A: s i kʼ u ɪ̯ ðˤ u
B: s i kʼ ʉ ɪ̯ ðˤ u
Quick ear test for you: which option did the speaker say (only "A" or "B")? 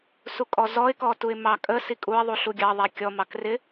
A